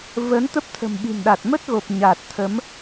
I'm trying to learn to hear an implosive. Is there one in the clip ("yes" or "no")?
yes